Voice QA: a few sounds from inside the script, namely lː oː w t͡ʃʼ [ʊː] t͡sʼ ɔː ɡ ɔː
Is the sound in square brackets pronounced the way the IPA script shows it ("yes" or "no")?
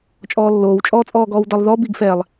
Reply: no